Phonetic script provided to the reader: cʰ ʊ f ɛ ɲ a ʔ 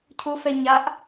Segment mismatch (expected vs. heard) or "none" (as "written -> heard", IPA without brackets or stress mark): none